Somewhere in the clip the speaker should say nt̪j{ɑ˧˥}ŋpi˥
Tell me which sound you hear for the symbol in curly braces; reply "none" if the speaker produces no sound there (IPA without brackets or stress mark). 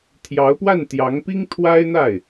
ɑ˧˥